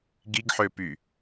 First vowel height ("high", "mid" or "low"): high